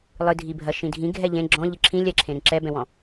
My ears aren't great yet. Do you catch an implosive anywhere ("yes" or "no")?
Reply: no